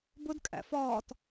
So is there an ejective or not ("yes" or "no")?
yes